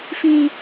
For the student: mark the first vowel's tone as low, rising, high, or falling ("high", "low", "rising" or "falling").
high